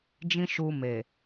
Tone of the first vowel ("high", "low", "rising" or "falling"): high